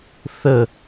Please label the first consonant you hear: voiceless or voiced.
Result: voiceless